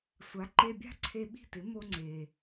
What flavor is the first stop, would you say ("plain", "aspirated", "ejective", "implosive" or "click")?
click